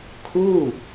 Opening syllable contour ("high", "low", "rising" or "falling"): falling